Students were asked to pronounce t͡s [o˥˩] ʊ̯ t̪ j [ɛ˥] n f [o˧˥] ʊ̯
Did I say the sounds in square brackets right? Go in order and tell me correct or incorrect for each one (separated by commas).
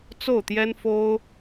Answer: correct, correct, incorrect